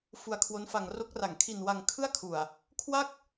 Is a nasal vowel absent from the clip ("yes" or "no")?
yes